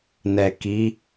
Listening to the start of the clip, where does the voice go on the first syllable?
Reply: low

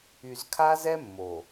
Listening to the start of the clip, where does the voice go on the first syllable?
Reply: low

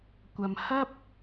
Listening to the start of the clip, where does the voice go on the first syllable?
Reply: low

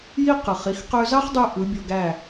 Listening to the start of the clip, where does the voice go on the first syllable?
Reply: high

